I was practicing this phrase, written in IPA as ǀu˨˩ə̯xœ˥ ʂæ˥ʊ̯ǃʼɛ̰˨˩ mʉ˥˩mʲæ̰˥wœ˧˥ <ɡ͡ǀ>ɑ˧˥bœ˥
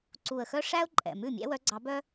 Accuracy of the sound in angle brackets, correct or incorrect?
correct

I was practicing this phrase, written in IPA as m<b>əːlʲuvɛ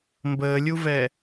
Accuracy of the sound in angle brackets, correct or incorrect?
correct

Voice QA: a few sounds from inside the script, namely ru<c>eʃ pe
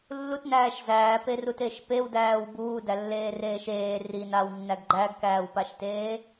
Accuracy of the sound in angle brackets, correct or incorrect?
incorrect: t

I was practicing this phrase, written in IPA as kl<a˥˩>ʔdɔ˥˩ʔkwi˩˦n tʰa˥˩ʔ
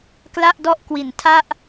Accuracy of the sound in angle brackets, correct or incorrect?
correct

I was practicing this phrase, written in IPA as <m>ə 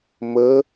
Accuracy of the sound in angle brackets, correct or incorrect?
correct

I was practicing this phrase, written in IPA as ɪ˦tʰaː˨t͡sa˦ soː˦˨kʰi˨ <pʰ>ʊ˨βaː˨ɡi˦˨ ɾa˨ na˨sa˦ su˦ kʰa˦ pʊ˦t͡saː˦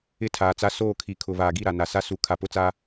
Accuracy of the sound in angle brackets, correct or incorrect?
incorrect: kʰ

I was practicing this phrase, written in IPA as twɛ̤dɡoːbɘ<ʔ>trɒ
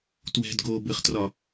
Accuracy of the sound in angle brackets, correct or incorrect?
incorrect: χ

